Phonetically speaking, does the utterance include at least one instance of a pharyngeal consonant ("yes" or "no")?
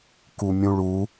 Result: no